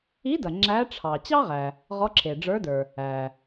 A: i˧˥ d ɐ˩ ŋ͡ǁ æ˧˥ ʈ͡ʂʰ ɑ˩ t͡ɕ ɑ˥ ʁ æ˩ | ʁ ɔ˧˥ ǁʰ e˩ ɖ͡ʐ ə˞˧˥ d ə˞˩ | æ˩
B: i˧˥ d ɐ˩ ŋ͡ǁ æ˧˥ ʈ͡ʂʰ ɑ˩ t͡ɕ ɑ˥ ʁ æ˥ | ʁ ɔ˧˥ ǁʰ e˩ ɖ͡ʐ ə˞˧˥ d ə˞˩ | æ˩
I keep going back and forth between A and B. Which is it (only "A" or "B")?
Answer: A